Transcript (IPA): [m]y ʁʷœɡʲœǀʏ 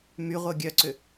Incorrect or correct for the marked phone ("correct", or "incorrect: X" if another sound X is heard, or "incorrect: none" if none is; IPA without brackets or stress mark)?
correct